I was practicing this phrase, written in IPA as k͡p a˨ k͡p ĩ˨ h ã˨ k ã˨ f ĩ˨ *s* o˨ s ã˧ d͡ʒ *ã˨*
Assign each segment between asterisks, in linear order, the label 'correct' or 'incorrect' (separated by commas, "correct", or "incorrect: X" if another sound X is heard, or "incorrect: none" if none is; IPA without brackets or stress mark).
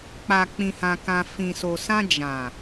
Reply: correct, correct